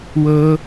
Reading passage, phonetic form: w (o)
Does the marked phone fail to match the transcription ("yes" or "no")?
yes